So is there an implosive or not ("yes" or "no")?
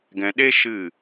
yes